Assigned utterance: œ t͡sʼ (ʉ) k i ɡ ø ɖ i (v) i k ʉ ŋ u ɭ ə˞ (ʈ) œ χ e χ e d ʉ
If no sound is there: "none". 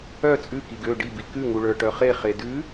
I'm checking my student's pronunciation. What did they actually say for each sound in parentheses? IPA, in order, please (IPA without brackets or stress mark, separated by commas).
ʉ, b, ʈ